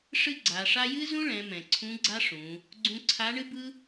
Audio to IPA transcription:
ʂ ɨ˥ ɡ͡ǀ a˩˧ ʂ a˥ j ɨ˥ z ũ˥ ɭ ɛ̃˩˧ m ɛ̃˩ ǀʰ ũ˧˥ ɡ͡ǀ a˥ ʂ ũ˩˧ | ɡ͡ǀ ũ˧ ǀʰ a˧˥ ɳ ɨ˥ b ɯ˥

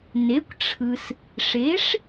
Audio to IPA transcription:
n e˩˥ kʷ ʈ͡ʂʰ ɯ˩ s | ʂ e˩˥ ʂ

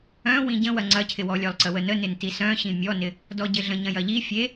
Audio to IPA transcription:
œ̃ w ĩ ɟ ə̃ w ɐ ŋ͡ǀ ɐ cʰ ɪ w ɔ lʲ œ lˠ ǀ ə w ə n ə n ɪ n t i s œ̃ ɕ ĩ mʲ ɔ n ɪ | d ɔ ɟ ɪ ɮ ə̃ ɲ ɐ̃ j ɐ ʎ i fʲ e

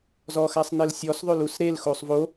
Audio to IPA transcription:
z ɔ x a sˤ n e l sʲ ɔ s ðˤ ø l u s ɾ e l x o sˤ v o

